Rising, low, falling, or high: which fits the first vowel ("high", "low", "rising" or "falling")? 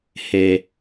high